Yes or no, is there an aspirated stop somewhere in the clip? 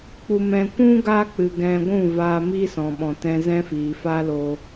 no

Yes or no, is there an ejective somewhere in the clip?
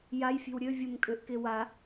yes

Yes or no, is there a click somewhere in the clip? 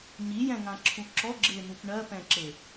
yes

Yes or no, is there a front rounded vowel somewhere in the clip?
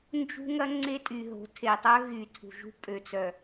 yes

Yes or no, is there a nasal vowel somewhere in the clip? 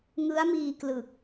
no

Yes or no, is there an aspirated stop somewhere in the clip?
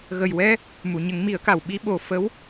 no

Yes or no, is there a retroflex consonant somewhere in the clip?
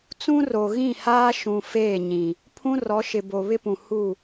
no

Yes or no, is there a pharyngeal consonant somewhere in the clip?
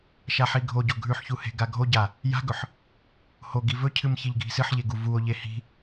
yes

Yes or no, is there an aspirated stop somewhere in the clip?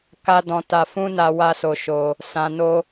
no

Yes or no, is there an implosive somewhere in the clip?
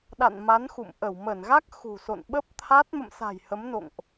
yes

